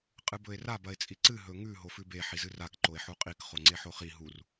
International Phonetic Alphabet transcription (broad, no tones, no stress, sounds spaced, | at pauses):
qʼ ɨ b ɵ e̯ r a b ɐ e̯ t͡sʼ i ǀ ɨ ɦ ɵ ŋ ʉ ɦ o f ʉ b e ħ i z ɨ r a k ǃ o e̯ ħ u qʼ i k χ o ŋ͡ǀ e ħ o χ i ɦ u r